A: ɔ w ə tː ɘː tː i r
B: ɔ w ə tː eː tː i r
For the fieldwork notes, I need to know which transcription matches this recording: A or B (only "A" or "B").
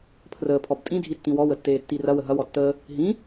B